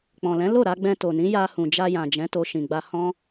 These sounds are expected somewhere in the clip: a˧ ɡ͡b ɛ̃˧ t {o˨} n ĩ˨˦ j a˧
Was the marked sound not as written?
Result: no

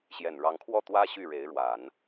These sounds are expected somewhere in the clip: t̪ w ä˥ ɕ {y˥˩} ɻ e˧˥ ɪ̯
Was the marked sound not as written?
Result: no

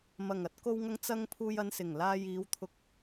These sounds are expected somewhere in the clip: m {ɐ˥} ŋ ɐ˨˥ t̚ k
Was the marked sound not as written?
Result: yes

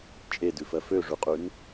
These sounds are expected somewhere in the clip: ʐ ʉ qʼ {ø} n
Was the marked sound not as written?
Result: yes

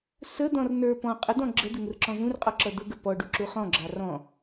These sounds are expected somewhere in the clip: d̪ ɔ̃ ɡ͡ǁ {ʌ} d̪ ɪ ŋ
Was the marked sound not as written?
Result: yes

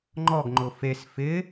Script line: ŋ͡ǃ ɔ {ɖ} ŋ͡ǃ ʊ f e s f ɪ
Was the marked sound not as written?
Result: yes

